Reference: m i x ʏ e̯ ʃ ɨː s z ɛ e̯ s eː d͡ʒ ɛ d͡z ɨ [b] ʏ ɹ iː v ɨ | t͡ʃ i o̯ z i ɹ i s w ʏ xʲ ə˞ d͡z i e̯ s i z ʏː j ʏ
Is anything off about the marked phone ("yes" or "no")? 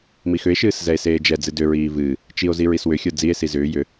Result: yes